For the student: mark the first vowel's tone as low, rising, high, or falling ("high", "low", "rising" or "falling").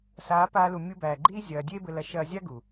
rising